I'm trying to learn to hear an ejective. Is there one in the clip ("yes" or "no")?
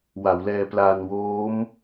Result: no